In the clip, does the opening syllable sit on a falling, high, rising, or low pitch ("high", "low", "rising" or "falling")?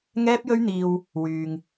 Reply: high